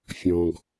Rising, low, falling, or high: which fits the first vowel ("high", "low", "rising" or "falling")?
low